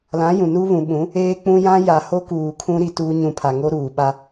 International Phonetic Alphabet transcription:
l ã˨˦ j ũ˨ n u˦ β ũ˨ ɓ ũ˨˦ | eː˦ k͡p ũ˦ j ã˦ j a˨ h o˦ k uː˨ kʰ ũ˦ ɾ i˦ t u˦ ɲ ũ˦ pʰ a˨ ŋ o˦ ɾ uː˨ ɓ a˦

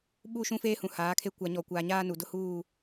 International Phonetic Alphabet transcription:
ɓ u˦˨ ʃ ũ˦ f eː˦ h ũ˨ h aː˨˦ kʰ e˦ kʷ a˨ ɲ ɔ˨ kʷ aː˨ ɲ aː˦ n u˨ d ʊ˦ h uː˦˨

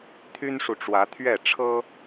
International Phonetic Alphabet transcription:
t̪ʰ y˦ n ʂ u˨ ʈ͡ʂ w ä˨˦ t̪ʰ ɥ ɛ˥˨ ʈ͡ʂʰ ɤ˦

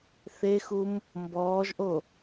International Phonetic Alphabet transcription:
θ e x u m | m b ɔː ʒ ʔ o

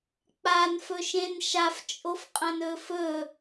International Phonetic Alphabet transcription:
k͡p a n f ɵ ʃ ẽ n ʃ a f t͡ʃʼ o f qʼ ɐ̃ n ɵː f ɵː

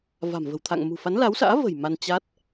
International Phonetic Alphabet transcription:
v a̤˨˩ m v ə̤˨˩ w t̪ʰ a̰˧˨ ŋ m ṳ˨˩ f a˨˦ n l a˨˦ w s a̰ː˧˥ v ə̤˨˩ j m a˧ n t͡ɕ a˦˥ t̚

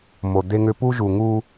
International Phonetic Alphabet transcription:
m o˨ d̪ e˦ ŋ ʏ˦ p u˦ ʒ u˨ ŋ u˦

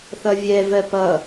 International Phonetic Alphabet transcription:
θ ʌ vʲ ɛ v ɜ p ʌ

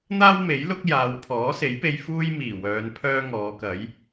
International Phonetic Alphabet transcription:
n̪ aː˥ w m e˨˥ j l ʊ˥ k̚ j aː˨˧ w pʰ ɔː˨˥ s e˨˥ j p e˧ j f uː˥ j m iː˨˩ w œː˨˧ n pʰ œː˥ ŋ ɔː˨˧ k ɐ˨˥ j

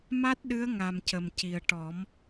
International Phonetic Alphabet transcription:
m a˦˥ t̚ ɗ ɨ˧˥ ə̯ ŋ a˨˩ m c ə˨˩ m c i˨˩ ə̯ ʈ ɔ˨˩˦ m

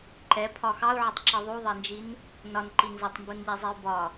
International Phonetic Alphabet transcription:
ǃ ɛ pʰ ɒ x ɑ u̯ ʕ ɪ tˤ ǁ i ðˤ u ðˤ ɜ n d͡ʒ i n | n ɒ n ǃ i n z ʌ tˤ m b u n ʎ ɛ zˤ i u̯ b ɒ

